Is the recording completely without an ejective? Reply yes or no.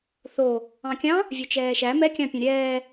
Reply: yes